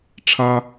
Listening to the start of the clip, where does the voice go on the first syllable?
high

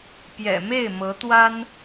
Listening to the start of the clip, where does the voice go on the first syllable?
low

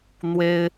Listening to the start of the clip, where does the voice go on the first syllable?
high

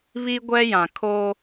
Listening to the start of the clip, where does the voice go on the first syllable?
high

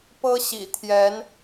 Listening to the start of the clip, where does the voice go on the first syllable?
high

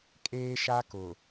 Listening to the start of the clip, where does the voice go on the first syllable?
high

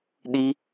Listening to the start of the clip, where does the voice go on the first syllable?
high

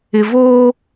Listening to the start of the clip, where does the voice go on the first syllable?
low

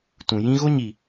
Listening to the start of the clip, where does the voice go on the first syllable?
low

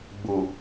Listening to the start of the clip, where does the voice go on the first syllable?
low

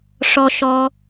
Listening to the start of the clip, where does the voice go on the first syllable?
low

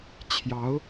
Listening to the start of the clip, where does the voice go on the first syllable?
rising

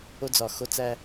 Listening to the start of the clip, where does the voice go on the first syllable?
high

